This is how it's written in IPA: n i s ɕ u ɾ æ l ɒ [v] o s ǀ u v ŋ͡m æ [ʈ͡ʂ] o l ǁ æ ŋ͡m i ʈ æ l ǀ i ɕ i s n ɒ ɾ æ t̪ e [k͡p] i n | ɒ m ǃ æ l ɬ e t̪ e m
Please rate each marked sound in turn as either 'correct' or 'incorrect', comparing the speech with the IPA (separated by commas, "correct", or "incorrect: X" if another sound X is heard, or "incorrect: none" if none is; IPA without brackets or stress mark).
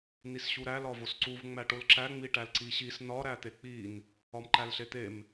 correct, incorrect: ʈ, correct